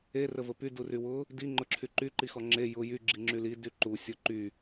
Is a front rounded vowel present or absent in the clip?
present